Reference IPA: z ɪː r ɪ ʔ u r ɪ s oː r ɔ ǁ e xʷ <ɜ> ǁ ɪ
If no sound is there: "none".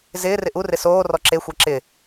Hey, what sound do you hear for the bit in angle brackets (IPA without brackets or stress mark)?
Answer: ɜ